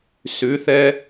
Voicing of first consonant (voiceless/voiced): voiceless